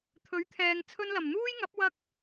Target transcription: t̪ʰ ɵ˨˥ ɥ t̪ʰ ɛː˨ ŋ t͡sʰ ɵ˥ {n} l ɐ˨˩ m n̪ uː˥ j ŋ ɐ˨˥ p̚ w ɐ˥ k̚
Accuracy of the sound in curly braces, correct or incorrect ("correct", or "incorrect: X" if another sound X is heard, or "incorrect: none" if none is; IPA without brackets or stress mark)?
correct